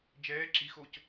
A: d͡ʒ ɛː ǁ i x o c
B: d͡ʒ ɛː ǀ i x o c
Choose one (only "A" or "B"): A